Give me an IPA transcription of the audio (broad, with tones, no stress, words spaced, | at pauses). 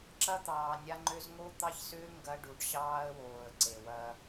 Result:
ǁɐ˦t̪ɑː˨ nʲa˦ŋ͡ǃø˦z ŋo˦ t̪ɑ˦çsʏː˦ ŋɡɐ˦ ɖu˨ɖɕɑː˦ə̯woː˨ə̯ ǀe˨wɐ˦